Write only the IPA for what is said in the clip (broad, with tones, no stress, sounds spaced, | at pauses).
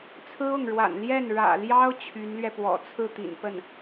t͡sʰ ɹ̩˥ ʊ˥˩ ŋ ɻ w a̰˨˩ n l j ɛ˥˩ n ɻ ä̰˨˩ l j ɑ˥ ʊ̯ t͡ɕʰ y˧˥ n l ɥ ɛ˧ p w ɔ̰˨˩ t͡sʰ ɹ̩˥˩ t̪ ḭ˨˩ n p ə˥˩ n